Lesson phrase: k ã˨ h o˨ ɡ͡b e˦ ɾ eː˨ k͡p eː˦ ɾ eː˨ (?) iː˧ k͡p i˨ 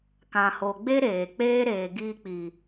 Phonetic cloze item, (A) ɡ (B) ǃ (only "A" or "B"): A